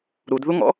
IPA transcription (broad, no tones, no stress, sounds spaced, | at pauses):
ɾ u d ð u ŋ ɔ̰